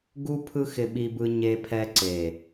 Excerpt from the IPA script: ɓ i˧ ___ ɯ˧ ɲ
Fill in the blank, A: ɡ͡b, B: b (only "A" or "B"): B